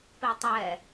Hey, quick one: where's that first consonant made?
lips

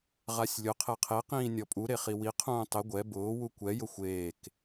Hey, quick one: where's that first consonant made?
uvula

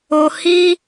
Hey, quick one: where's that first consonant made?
throat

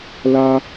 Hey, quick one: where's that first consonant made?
tongue tip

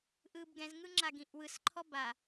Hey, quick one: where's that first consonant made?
throat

